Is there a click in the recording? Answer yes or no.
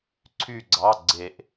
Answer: yes